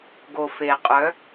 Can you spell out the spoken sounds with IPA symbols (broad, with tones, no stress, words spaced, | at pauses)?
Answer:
ɡo˨fe˨qʼœ˨˦